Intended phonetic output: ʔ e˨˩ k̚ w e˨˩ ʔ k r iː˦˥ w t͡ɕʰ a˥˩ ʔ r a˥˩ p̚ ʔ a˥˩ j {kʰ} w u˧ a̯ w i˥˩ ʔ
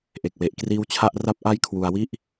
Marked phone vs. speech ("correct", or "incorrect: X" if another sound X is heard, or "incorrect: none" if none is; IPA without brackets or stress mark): correct